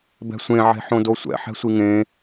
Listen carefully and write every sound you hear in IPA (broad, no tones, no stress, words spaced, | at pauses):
bɛ̤sʷẽ ʕe̤ħõdosʷɛ̰ ħɛ̤sʷiŋẽ